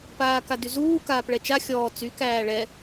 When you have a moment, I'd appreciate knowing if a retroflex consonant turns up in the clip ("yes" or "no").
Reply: yes